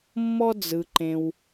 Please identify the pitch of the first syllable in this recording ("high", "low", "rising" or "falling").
high